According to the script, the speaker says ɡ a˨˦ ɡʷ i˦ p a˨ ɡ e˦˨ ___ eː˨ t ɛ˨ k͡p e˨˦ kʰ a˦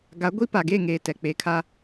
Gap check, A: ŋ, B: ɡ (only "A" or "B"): A